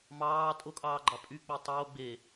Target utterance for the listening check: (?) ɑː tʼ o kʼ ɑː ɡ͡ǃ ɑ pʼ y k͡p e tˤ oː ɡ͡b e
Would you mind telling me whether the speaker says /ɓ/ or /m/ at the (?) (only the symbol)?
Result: m